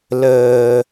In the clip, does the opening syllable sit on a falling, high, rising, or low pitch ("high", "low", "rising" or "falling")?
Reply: low